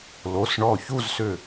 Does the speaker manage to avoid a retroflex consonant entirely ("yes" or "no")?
no